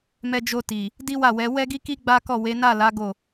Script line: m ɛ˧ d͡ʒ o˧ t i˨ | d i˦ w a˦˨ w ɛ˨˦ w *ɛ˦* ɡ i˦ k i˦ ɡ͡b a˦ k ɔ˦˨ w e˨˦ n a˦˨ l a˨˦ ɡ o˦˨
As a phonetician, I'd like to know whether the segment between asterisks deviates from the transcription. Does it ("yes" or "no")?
no